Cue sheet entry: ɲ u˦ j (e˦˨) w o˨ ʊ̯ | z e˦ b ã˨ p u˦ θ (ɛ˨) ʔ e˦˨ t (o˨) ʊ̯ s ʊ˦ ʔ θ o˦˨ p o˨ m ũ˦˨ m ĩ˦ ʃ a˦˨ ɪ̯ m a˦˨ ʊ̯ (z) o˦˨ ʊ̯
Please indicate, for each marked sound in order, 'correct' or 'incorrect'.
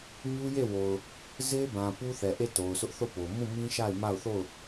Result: correct, correct, correct, incorrect

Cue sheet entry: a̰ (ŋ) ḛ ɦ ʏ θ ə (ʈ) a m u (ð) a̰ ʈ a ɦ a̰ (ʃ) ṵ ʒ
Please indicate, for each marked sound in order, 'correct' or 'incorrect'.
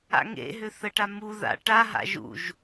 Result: correct, correct, correct, incorrect

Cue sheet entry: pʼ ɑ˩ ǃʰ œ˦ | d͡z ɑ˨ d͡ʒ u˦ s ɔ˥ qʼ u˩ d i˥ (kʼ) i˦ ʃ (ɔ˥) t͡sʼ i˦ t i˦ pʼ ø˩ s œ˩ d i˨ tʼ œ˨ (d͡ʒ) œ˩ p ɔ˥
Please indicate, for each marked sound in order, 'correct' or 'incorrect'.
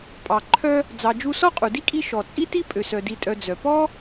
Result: correct, incorrect, incorrect

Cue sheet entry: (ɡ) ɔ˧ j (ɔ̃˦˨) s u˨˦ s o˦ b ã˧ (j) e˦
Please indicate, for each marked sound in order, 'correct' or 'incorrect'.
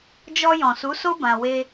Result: incorrect, incorrect, incorrect

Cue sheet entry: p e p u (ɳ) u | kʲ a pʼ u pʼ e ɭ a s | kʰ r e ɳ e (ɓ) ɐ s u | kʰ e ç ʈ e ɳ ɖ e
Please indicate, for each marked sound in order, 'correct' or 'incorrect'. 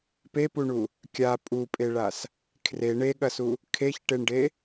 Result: correct, incorrect

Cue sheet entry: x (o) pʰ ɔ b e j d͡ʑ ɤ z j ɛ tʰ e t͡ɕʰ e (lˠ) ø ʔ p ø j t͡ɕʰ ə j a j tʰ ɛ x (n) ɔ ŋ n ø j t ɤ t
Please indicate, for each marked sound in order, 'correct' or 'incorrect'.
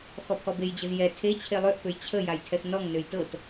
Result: incorrect, correct, correct

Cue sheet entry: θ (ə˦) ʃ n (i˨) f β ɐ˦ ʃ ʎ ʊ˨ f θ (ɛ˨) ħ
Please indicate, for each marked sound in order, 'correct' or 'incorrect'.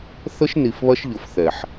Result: correct, correct, correct

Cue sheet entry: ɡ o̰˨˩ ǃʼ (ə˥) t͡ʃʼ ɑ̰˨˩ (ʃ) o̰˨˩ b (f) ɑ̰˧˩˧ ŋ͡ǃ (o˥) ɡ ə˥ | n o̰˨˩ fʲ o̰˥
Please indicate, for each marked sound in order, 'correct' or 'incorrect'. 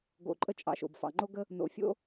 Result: correct, correct, correct, correct

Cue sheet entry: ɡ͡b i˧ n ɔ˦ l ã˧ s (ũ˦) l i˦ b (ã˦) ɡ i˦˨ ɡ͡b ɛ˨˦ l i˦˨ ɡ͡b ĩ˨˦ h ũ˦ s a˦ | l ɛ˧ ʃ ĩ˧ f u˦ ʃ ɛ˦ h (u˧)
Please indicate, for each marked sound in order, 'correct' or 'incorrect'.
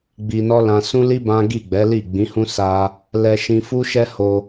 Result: correct, correct, incorrect

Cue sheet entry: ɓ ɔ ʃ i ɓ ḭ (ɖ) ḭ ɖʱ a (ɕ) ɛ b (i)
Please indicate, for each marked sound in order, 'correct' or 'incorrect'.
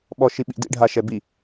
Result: incorrect, incorrect, correct

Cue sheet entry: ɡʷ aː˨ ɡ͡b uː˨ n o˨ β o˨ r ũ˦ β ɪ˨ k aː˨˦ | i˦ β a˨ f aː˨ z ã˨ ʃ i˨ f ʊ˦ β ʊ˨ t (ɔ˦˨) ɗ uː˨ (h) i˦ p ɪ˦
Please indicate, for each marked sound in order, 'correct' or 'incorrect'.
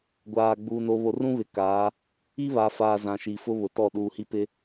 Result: correct, correct

